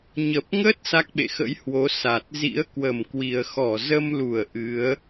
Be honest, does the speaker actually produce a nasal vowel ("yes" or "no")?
no